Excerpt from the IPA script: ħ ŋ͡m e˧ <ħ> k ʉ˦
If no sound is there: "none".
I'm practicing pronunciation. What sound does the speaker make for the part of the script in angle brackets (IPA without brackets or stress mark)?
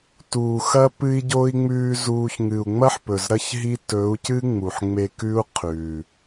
none